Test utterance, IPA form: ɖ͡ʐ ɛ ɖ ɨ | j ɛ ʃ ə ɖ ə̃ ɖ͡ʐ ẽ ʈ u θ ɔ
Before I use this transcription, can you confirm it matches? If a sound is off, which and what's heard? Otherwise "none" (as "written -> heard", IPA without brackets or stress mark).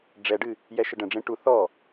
none